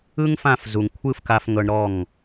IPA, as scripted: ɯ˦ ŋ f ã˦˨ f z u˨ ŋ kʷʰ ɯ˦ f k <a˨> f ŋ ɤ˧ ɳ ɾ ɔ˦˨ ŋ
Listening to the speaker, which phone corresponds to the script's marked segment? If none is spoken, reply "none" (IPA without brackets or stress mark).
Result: a˧